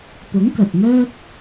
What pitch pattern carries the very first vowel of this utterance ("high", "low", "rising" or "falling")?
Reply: rising